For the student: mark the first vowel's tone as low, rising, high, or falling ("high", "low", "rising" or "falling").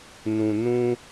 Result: low